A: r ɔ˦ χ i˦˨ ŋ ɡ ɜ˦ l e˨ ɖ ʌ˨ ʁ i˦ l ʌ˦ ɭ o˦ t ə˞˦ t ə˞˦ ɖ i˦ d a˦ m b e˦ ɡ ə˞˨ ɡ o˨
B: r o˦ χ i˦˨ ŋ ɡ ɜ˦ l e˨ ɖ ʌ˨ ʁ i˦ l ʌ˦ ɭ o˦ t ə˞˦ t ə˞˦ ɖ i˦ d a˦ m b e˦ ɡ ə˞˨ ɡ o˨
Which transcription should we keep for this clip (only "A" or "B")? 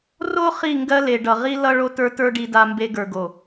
B